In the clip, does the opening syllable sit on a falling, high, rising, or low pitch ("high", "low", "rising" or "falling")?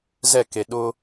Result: falling